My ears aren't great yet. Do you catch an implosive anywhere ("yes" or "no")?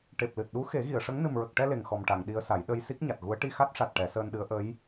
yes